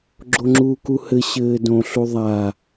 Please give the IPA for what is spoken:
ɡ͡ǁ o ŋ͡ǁ uː k u h ɘ ɕ ɘː d õ ɬ u ðˤ a

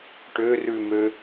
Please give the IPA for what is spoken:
ʈ ø r ʉ m ø

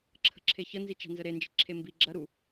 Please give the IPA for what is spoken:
ǁʰ ə̤ ǁʰ e ç ə n z i t͡ʃ a̤ n z ə ɾ e n d͡ʒ i̤ ǁʰ e m b i ɡ͡ǁ ɐ ɾ u

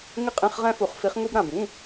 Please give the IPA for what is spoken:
ŋ ɪ˥ qʼ ĩ˧˥˧ χ ʁ ɛ̃˥ f u˨˩˦ χ f i˧˥ χ ŋ u˥ b ɾ ã˨ b ĩ˧˥˧

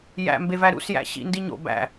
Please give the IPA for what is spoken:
j æ̰ m b e v æ ɾ ṵ s j æ̰ ɕ ḭ n d i ɲ o̰ b æ̰

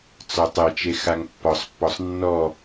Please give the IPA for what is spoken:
t͡s ɒ tˤ e t͡ʃ e x a ŋ pː ɒ sˤ pː ɔ sˤ nː ɔ

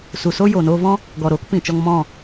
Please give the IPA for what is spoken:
s u˨ s o˦ j oː˨ n oː˧ v ɔ̃˦ | ɡ ɔ˨ ɾ oː˦ k p ĩ˨ t͡ʃ ɔ˧ ŋ m ɔ̃˦˨

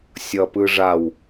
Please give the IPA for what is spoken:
sʲ ʌ p ɯ ʐ a w

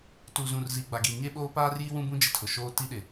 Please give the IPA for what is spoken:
t u˨ z ũ˨ r z i˨ ɡ͡b a˨ ɡ i˨ ɲ e˦ ɓ oː˦ p aː˦ r j i˦ w ũ˦ b ũ˦ d͡ʒ ɪ˨ tʰ ʊ˨ ʃ oː˦ t i˦ ɗ ɪ˨

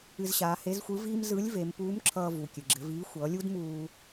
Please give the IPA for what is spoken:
ɨ˧ z ɕ aː˩˧ h e˧˥ z xʷ ɯ˧˥ v iː˥ m z ɯ˧˥ lʲ v e˩˧ m p uː˧˥ m ǁʰ ʌː˧ v u˩ kʲ ɨ˩ ɡ͡ǁ ɘ˩˧ v iː˧˥ xʷ ʌː˩˧ lʲ u˥ d m uː˧

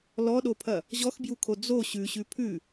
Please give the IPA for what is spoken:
l ɔ ɗ o pʰ ɐ | ʑ ɔ x b j u kʰ o d͡z o ɕ ʉ ɕ ʉ pʰ ʉ

